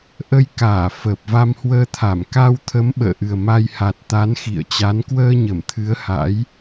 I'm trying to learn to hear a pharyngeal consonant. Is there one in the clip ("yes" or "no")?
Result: no